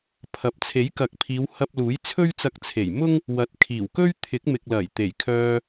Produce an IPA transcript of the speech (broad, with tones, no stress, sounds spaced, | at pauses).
pʰ ɐ˨ p̚ t͡sʰ e˨˥ j k ɐ˨˥ k̚ pʰ iː˨˧ w h ɐ˧ p̚ l uː˨˥ j t͡sʰ ɵ˥ ɥ t͡s ɐ˧ k̚ t͡sʰ e˨˩ j m ʊ˥ ŋ | w ɐ˨˥ t̚ kʰ iː˨˩ w k ɵ˥ ɥ t̪ʰ ɪ˨˥ k̚ m ɪ˨ k̚ l ɐ˨˩ j t̪ e˨˩ j kʰ œː˧